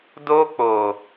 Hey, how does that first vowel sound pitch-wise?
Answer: high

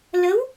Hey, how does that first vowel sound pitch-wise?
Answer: rising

